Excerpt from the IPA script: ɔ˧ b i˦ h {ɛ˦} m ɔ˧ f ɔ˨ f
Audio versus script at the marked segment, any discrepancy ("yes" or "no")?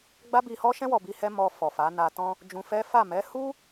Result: no